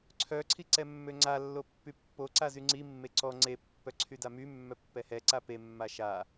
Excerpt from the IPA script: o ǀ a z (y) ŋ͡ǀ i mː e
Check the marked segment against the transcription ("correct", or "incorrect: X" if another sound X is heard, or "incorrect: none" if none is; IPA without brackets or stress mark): correct